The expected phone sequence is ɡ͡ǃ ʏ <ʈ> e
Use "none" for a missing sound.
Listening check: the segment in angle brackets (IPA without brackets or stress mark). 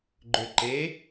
ǃ